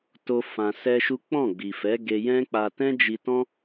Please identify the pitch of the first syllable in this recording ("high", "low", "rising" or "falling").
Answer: high